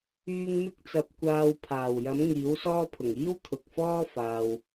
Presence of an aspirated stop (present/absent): present